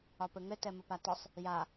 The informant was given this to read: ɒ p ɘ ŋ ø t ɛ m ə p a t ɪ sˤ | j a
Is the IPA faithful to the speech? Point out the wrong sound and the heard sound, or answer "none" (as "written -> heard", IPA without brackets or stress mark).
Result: ø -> ɘ